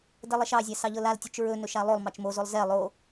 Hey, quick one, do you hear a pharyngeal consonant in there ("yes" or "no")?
no